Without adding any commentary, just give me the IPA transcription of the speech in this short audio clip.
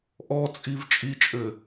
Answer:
ʔɔt͡sʼiv t͡ʃʼit͡ʃʼɘ

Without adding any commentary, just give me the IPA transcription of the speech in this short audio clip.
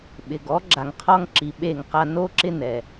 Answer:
ɓɪ˨ɡɔ˨˦ ɡ͡ǁa˨ŋqʰɔ˦ŋǁi˨ɓe˦˨ŋ qa˧no˦ǁɪ˦ nɛ˨

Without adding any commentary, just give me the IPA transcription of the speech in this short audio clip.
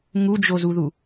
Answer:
ŋud͡ʒozuðu

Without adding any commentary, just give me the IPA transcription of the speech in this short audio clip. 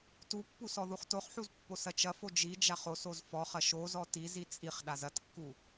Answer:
tupːu sɔðuχtoχħuz pːosɐt͡ʃɐfo d͡ʒid͡ʒaχ osoz fɔχɐ ʃozɔ tizi t͡sʼiχ ɗazɐtkːu

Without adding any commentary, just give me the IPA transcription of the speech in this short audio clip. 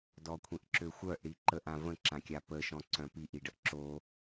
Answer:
dɔkʷʰĩʔǁøxʷœʔ ɽiǃəʔ ãvə̃ ǁãkʲapə ʃɔ̃ǀœ̃piʔ iɖəʔǁo

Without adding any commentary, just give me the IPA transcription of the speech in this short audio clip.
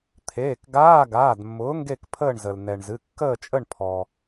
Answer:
t̪ʰeː˩˧˩kɡaː˧˥˧ɡaː˩˧˩d mːʊː˨˥ŋɡe˦˨kpʰəː˦˨ɳzə˩l nɛ˩ɳ zɨ˩˧˩ kːəː˦˨t͡ʃʼə˦˨ɳpʰɔ˩

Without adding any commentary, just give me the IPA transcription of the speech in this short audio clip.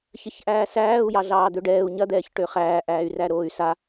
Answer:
çɐçʔæːsæːu̯ jɑɮɑːd̪øɖɛːu̯ ɲɐd̪ɛːçʈø χæːʔæːy̯ræɾoːy̯ sa

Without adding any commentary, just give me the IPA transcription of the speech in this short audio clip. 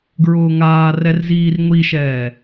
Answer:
ɡɹʊːŋaːrɛr ziːrŋʷiʃɛː

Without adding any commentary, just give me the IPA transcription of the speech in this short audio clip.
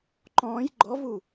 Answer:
ǃɔ̃ːj ɡ͡ǃɔvu

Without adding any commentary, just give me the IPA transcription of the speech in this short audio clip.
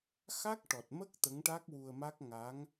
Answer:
xa˦˥k̚ʈɔ˨˩t̚mə˦˥k̚ t̪ə˧˥ŋʈa˦˥k̚wu˧ə̯ma˦˥k̚ ŋa˧˥ŋ

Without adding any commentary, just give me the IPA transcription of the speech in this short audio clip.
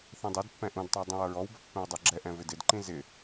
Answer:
θɛ̃dˤɛdpːɛ̃ ʔũdtˤɑ dˤũwʌɹɔwbʌ pːɛ̃wdˤə˞ɡ͡ǁɛʔɛ̃ vɪdɪdǃĩ zɪ

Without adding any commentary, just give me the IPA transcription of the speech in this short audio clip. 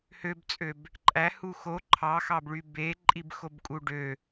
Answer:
høbt͡sʼøb | ǃʼæhu xo ǃʰɑxɑbɭy beǃʼibxobkʼu ɖø

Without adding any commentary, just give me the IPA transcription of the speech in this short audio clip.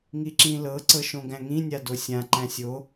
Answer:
ŋiǁĩlɤ ǀɤʃõɡæ̃ŋĩ nʲadosʲã ǃæ̃sʲo

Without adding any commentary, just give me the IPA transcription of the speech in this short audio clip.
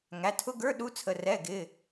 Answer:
ŋæ˩˧˩tʰʊ˧˥˧ɡə˞˧˥˧ ɗu˧˥˧t͡sʰə˩˧˩ rɛ˩˧˩ ɡɪ˩˧˩

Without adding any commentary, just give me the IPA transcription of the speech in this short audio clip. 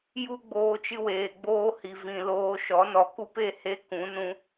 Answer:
ju˦ɡ͡boː˧t͡ʃɨ˧weː˨ ɡ͡boː˧hi˨vĩ˨ loː˧ʃɔ˨˦ nɔ˨ku˦pe˦˨ he˦kũ˨˦nũ˧

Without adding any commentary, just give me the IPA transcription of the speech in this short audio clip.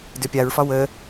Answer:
dʏpʲaɹfɒ wə

